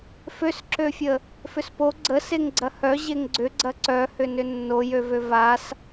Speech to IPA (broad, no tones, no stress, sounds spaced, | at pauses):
f ø s ǁ ø fʲ ə | f ʏ s p o ɡ͡ǀ ə s e ŋ ɡ͡ǀ ɐ h œ ʑ e ŋ ɡ͡ǀ ʏ ɡ͡ǀ ɐ ǀ œ h ʏ n ʏ nː o j ø v ø v a s